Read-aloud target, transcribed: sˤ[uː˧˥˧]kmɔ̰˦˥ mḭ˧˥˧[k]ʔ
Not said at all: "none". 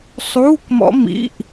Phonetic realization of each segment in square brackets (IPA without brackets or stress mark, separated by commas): uː˧˥˧, none